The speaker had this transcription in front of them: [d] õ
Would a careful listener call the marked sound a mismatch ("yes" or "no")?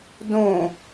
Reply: no